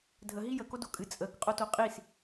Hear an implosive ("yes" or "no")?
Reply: no